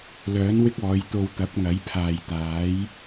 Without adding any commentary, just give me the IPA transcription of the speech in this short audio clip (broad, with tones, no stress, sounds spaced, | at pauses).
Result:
l œː˨˥ n w ɪ˥ k̚ ɔː˨˧ j t̪ o˧ w t̪ ɐ˨˥ p̚ ŋ ɐ˨˥ j pʰ aː˨ j t̪ aː˨˥ j